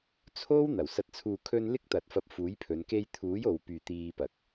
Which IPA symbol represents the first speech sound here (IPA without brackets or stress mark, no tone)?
t͡sʰ